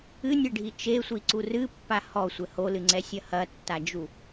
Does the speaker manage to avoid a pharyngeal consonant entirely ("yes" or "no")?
yes